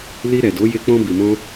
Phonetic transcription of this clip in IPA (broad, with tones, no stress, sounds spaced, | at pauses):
l i˧ ɾ ɛ˨ d o˨˦ j e˧ k͡p ɔ̃˧ b i˨ m ɔ̃˧